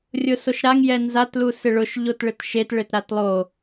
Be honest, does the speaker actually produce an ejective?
no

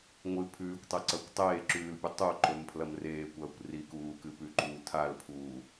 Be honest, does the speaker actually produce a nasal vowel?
no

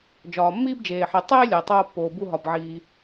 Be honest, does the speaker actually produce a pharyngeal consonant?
yes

